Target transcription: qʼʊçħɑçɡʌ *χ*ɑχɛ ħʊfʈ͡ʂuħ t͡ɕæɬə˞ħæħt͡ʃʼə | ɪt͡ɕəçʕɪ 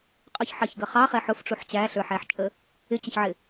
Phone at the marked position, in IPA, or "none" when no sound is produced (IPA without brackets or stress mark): χ